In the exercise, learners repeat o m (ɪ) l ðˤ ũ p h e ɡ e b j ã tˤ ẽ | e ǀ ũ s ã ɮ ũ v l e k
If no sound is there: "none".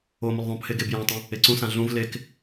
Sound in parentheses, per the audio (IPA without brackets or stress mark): ɪ